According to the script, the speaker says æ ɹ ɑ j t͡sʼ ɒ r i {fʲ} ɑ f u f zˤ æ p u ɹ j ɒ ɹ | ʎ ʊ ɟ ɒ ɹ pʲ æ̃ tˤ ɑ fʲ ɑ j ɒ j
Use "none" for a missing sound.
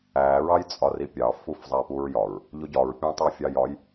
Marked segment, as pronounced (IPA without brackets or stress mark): pʲ